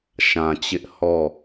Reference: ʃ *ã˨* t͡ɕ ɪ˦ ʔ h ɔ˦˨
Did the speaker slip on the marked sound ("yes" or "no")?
no